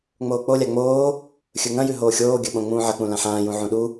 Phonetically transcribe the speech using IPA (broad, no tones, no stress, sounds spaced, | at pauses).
ŋ͡m oː k͡p o lʲ a ŋ͡m oː | xʲ ɵ ŋ ɐ̃ j ʉ ɦ oː xʲ oː ɡʲ ɵ ɓ õ ŋ͡m ũː ʕ ɐ k͡p ũ l ã ħ ãː j ũ ʕ ũ ɗ u